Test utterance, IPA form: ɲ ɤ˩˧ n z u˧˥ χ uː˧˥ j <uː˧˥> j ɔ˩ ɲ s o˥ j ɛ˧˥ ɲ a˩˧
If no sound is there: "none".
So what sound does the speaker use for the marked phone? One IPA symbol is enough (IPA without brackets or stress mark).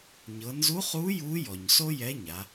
uː˧˥